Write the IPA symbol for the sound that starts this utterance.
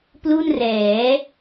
p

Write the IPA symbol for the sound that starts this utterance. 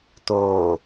t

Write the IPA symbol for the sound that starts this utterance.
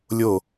lʲ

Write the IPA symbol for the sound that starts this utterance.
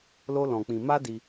l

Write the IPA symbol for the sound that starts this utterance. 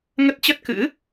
ŋ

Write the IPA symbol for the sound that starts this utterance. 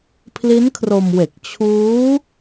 pʰ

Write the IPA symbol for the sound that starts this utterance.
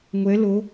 ŋʷ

